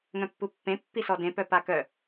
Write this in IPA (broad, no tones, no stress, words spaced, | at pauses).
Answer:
ŋœ̃pːupːẽ pːisɔdẽ pœpakœ